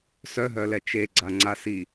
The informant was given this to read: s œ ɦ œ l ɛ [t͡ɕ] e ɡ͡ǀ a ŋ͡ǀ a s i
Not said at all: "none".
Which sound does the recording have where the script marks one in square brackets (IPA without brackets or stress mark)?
t͡ʃ